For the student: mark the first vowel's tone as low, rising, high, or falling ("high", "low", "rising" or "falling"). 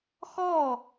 falling